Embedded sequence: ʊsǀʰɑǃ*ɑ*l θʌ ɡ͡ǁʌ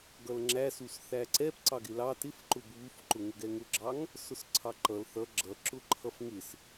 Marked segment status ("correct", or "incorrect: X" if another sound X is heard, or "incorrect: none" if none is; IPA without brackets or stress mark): incorrect: ʌ